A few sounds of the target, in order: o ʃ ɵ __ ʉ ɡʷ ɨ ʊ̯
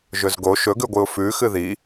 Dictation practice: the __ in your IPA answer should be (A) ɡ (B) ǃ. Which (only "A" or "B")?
A